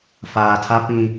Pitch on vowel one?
low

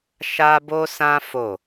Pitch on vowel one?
high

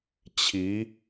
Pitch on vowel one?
rising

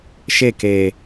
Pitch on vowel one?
falling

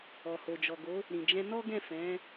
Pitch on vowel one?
low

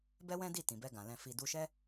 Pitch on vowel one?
high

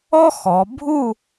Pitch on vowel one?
high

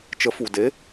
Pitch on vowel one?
rising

